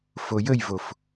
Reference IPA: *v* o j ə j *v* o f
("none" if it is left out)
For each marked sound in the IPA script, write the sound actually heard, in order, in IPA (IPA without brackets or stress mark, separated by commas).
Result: f, v